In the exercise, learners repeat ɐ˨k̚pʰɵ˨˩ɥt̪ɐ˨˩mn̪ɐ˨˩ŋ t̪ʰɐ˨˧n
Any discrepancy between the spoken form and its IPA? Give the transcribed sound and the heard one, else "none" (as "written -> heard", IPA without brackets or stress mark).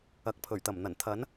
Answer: ŋ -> n